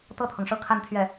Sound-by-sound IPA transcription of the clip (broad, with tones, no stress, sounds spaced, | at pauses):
t̪ ɤ˥˩ t̪ʰ ɤ˩ ŋ ʂ ɤ˥˧ kʰ a˥˧ n t̪ʰ ɥ ɛ˥˩